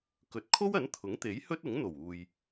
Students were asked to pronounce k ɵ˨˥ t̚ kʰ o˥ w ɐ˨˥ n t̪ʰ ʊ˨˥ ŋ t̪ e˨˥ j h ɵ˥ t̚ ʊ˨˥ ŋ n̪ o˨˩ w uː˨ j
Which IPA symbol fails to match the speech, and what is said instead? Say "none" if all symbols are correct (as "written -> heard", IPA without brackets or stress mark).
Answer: none